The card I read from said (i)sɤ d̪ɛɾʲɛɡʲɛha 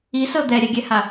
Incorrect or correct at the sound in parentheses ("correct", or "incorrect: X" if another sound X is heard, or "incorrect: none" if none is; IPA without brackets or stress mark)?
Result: correct